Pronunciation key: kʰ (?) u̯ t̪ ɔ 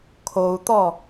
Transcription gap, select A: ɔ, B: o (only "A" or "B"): B